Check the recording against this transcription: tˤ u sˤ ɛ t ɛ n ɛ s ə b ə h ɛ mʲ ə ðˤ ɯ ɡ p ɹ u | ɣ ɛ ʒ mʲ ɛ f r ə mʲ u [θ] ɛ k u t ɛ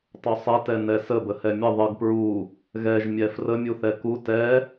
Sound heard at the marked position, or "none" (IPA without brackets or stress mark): θ